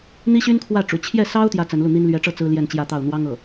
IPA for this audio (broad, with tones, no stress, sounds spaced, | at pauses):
n̪ i˥ ɕ y˥ n kʰ w ä˥˩ ʈ͡ʂ ṵ˨˩ t͡ɕʰ j ɛ˥˩ s ɑ˥ ʊ̯ t̪ j ä˥ t͡s ə˧˥ n l u˥˩ n̪ i˥ n l ɥ ɛ˧˥ ʈ͡ʂ ɤ˥˩ t͡s ɹ̩˥ l j ɛ˥˧ n t͡ɕ j ä˥˧ t̪ ɑ˥˩ ʊ̯ n̪ w ɑ˥ ŋ ɤ˥˩